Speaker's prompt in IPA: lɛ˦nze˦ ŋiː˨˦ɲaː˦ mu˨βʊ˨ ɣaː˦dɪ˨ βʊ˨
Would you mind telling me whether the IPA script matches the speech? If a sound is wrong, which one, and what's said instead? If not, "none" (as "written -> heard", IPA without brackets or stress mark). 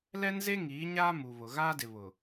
none